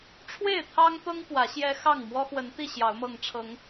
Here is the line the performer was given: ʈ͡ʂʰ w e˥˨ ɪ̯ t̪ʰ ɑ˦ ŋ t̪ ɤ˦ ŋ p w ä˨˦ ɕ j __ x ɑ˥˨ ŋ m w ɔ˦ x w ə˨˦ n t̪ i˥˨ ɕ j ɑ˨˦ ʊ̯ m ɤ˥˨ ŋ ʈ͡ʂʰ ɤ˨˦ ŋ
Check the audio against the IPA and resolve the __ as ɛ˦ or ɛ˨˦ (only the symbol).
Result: ɛ˦